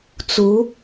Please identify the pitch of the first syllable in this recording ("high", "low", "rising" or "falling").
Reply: rising